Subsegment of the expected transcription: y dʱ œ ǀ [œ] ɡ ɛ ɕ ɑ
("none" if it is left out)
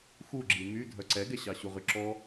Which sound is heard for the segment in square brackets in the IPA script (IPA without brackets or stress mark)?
ɛ